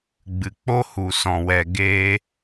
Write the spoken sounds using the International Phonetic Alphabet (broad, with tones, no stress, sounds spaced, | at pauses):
ɡ͡b ɨ˨ k͡p o˦ h u˨ s ɔ̃˨ w ɛ˨ ɡ eː˧